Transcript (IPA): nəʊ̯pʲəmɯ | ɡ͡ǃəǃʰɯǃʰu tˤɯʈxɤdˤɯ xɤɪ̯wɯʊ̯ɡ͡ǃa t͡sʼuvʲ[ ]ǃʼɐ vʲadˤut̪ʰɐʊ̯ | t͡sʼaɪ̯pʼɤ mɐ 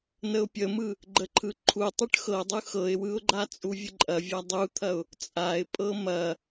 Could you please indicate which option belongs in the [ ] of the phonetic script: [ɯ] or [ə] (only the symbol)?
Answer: ə